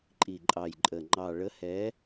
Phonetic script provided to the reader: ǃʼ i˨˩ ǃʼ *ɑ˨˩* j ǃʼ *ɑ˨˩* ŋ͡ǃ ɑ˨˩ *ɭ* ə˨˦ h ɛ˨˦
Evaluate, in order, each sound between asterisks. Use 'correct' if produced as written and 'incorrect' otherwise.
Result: correct, incorrect: ə˨˩, correct

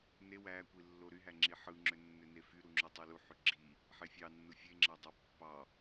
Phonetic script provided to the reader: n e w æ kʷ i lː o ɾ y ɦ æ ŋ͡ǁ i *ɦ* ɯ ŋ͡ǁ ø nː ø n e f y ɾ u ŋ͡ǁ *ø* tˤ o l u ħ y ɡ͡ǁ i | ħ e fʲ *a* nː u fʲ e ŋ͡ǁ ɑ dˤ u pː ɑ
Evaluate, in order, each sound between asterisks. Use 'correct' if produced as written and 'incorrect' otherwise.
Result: incorrect: ħ, correct, incorrect: ɑ

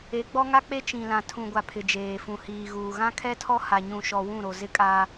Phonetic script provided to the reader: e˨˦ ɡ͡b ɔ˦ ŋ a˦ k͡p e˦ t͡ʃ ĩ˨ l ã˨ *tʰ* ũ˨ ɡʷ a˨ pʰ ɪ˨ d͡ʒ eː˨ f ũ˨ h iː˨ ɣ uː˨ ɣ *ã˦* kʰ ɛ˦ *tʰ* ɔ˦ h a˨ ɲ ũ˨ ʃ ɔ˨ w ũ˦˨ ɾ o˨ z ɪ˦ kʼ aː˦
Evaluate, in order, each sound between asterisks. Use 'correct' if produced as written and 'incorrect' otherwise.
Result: correct, correct, correct

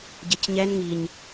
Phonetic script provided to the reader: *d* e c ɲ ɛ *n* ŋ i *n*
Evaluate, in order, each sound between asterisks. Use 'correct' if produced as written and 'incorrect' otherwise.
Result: incorrect: ɟ, correct, incorrect: ɲ

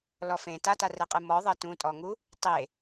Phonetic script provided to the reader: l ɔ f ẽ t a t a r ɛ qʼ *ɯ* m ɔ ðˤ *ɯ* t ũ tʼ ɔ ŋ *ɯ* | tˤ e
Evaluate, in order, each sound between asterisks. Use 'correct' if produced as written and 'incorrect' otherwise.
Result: correct, incorrect: ɤ, incorrect: u

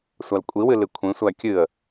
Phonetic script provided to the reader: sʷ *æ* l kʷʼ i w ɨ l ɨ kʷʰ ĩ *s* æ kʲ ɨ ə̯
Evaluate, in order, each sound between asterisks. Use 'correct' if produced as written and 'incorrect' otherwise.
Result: incorrect: a, incorrect: sʷ

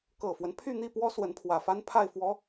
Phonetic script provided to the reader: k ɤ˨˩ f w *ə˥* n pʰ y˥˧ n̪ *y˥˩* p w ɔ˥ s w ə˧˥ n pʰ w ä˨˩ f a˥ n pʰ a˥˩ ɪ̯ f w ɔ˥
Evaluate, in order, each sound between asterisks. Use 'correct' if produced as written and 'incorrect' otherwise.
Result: incorrect: ə˦, incorrect: i˥˩

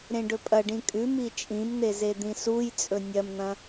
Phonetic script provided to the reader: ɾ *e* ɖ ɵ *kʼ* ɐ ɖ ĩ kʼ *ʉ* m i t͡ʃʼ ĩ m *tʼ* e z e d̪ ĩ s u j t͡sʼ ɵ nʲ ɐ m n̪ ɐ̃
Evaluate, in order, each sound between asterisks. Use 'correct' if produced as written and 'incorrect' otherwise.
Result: incorrect: ẽ, incorrect: pʼ, correct, incorrect: n̪

